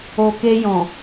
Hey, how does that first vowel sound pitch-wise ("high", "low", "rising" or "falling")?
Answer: low